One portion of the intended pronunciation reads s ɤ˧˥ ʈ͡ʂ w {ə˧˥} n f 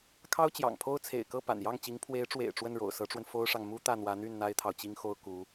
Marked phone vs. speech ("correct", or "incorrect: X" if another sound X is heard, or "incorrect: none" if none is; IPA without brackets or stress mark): incorrect: ə˧